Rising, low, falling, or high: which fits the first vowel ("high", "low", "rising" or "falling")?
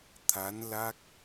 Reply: rising